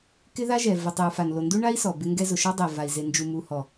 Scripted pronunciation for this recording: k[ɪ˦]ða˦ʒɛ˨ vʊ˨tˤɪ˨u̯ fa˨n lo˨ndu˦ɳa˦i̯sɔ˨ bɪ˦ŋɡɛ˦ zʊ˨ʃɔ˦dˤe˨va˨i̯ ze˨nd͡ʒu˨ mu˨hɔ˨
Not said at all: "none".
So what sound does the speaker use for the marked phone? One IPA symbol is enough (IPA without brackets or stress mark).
ɪ˦